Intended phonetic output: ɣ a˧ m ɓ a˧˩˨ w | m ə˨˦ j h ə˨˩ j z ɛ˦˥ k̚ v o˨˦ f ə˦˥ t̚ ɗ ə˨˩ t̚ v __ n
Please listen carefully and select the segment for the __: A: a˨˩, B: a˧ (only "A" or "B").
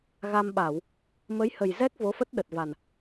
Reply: A